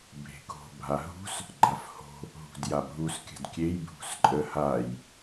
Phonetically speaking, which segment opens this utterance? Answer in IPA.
bʱ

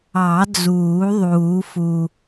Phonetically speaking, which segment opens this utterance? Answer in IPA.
ɑ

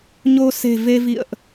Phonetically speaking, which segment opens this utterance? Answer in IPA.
ɲ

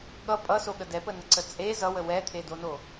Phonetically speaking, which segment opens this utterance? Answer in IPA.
ɠ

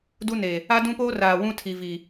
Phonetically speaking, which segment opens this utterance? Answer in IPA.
d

